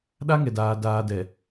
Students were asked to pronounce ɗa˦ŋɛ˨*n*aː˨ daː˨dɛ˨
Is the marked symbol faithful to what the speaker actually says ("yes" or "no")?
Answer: no